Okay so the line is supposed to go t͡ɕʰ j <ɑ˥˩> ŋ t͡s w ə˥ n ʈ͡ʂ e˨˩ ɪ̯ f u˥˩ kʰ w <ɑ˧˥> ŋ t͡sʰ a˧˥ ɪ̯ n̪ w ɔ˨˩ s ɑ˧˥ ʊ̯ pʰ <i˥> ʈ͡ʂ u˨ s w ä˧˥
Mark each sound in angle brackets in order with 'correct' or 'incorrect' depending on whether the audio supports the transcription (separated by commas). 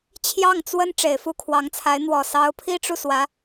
correct, correct, correct